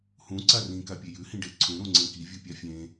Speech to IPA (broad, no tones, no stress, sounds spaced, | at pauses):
h ũ ǀ a r ĩ k a pʲ e j ʉ h ĩ ɖ e ǀʰ ũ ɾ ũ ŋ͡ǀ ẽ k i vʲ u pʲ a fʲ ẽ